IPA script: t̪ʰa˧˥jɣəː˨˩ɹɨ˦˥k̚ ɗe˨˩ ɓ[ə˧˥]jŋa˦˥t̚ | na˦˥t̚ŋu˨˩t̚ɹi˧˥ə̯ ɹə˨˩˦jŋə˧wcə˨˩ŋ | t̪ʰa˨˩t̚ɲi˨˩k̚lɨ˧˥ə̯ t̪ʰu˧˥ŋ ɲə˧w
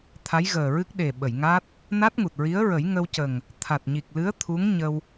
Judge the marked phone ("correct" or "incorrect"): incorrect